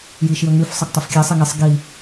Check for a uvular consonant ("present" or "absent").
absent